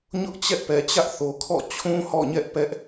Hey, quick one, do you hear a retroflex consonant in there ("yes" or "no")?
no